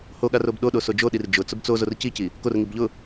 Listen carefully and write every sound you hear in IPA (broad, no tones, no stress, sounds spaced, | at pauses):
h o ɠ a r o b ɗ o ɗ o s o d͡ʒ o ɗ i r d͡ʒ ʊ t͡s ʊ b t͡s o z o r c i c i | k o r ŋ i b ʎ ʊ